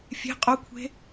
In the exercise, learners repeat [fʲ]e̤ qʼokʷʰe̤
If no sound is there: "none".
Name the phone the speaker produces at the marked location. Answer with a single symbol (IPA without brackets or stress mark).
fʲ